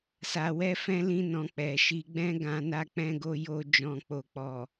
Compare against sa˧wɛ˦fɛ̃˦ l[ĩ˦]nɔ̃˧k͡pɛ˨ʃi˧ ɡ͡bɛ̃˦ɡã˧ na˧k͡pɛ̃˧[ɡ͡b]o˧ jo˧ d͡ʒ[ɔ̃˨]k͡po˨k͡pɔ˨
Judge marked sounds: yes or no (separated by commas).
yes, no, yes